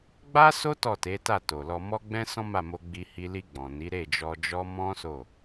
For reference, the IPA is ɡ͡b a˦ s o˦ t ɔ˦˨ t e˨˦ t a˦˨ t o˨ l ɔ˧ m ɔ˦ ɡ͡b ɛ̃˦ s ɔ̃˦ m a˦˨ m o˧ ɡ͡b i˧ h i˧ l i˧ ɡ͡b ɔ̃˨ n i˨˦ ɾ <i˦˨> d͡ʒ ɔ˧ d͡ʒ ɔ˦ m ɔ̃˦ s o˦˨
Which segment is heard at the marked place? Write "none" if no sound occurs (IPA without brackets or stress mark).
e˦˨